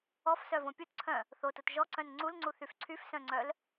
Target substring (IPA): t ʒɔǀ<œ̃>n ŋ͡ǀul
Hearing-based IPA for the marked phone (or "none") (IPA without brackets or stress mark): œ̃